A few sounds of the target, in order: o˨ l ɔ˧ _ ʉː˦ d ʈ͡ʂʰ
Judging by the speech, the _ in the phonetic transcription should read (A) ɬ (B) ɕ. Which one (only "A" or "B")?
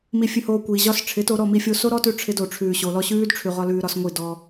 B